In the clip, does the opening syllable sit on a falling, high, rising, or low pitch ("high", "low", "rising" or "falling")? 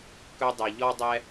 high